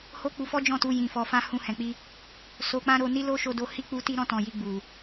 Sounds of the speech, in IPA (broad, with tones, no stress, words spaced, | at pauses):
ho˦k͡pu˧fɔ˦ d͡ʒɔ̃˦˨tu˧ jĩ˨fɔ˨fã˧ hũ˧ hɛ̃˨k͡pi˧ | so˧k͡pã˦ɾo˧ ni˦lo˦ʃo˧ do˧hi˦ k͡pu˧ti˧ɾɔ̃˧ tɔ̃˨ji˧ɡ͡bu˨